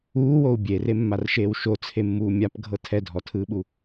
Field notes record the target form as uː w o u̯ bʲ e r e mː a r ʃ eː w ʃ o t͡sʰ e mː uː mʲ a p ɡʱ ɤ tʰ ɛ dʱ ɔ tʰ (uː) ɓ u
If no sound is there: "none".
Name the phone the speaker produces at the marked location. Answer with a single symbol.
ɯː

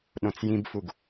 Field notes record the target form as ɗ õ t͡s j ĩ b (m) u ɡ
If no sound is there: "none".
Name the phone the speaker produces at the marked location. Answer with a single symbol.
f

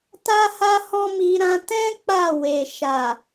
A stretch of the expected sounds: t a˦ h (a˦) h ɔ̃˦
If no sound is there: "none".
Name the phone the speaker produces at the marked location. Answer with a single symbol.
a˦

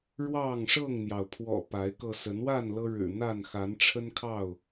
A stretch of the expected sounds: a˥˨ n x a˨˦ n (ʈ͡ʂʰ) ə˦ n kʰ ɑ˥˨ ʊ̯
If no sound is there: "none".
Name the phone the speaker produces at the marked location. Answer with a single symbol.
ʈ͡ʂʰ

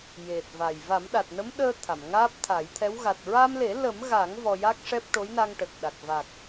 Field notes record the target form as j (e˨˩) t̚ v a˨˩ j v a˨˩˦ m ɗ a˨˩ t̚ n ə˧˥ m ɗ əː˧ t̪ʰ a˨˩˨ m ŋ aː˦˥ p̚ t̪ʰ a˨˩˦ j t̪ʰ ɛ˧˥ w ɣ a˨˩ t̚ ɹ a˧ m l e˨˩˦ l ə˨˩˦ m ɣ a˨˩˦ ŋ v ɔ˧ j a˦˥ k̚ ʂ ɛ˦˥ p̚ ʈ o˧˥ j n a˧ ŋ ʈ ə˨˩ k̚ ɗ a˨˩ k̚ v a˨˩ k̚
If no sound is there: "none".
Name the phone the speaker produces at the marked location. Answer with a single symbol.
e˨˩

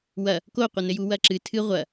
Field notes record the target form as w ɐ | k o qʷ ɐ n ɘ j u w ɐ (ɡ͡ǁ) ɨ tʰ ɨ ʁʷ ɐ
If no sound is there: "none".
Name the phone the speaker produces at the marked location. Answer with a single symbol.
ǁ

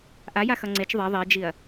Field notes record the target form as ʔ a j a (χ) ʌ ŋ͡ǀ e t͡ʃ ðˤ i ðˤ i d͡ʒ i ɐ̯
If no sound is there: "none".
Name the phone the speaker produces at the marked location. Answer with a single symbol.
x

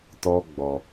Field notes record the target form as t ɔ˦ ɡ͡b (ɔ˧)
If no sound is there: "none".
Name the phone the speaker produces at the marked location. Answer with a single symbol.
ɔ˧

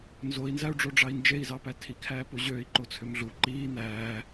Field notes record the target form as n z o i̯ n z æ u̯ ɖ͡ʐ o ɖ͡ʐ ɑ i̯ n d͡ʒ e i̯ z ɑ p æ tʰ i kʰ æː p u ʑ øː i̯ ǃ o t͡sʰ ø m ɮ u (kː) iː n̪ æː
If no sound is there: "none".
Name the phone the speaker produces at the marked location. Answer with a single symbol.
ǃ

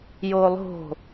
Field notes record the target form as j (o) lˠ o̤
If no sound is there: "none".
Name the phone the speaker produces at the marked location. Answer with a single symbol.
o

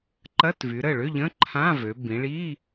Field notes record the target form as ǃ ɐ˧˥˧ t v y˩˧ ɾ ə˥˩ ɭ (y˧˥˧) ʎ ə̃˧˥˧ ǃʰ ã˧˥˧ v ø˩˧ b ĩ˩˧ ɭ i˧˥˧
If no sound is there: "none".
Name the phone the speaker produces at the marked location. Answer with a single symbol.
ʏ˧˥˧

